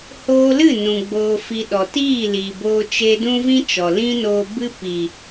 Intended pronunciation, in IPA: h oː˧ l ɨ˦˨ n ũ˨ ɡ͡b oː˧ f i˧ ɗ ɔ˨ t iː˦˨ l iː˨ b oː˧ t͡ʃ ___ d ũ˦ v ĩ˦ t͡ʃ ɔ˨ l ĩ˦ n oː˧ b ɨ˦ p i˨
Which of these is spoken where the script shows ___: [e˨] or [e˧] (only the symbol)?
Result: e˧